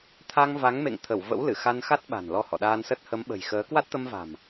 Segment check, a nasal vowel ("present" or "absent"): absent